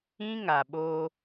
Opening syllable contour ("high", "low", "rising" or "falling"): high